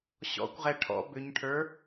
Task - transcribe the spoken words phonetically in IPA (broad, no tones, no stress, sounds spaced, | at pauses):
ɕ ɔ̰ kʷ ʁ ɛ ʈʰ ɔ̰ b ʏ ɲ ʈʰ ə˞